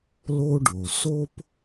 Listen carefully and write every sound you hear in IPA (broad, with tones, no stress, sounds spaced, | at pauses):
l o˥ ɖ o˩ s o˥ p